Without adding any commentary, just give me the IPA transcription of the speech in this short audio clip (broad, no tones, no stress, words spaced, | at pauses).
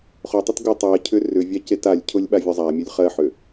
χʊtˤut ɡʊ tˤɜcʰʏ rʏvʲa cetalʲcʰʊlʲ ɓavʲʊzˤamʲʊlʲ χɜħø